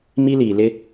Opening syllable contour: high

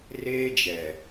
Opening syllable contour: high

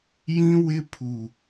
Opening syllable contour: high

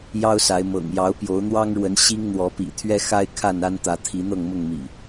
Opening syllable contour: high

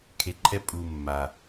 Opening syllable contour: low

